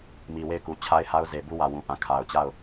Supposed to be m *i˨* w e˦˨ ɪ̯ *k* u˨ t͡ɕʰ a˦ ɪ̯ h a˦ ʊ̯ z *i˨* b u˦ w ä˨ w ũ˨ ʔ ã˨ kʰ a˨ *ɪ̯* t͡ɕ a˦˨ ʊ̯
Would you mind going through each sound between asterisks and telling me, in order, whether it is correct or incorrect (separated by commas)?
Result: correct, correct, incorrect, incorrect